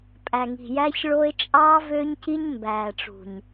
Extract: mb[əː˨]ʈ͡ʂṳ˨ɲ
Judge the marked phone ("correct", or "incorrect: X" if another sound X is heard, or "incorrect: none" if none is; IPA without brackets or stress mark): incorrect: æː˨